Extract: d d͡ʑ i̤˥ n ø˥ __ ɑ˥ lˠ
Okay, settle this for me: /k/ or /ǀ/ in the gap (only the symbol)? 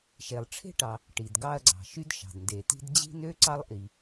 ǀ